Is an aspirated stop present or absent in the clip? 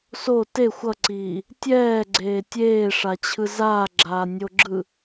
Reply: present